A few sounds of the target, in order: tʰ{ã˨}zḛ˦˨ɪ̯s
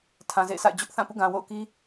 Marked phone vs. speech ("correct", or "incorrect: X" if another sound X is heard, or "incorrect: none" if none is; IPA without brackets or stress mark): correct